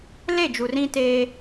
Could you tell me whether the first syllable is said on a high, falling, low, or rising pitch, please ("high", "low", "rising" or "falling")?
falling